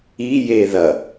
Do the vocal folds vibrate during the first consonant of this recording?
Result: yes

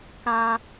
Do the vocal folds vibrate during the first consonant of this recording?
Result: no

